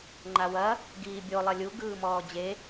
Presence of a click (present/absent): present